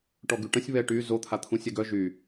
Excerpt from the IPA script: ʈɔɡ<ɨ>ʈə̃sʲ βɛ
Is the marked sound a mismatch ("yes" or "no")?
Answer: yes